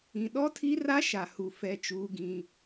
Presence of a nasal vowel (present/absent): present